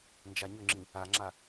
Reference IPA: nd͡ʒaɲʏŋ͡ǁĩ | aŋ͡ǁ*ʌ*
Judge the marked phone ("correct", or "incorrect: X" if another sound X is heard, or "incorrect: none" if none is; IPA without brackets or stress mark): incorrect: a